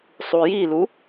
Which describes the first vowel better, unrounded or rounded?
rounded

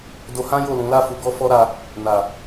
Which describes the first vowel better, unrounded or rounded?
rounded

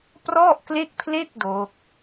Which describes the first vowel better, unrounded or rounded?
rounded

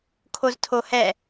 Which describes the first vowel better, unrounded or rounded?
rounded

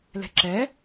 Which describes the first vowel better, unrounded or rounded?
unrounded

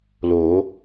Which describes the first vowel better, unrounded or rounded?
rounded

